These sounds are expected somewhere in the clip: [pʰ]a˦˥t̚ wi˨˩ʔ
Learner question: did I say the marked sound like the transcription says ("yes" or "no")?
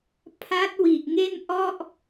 yes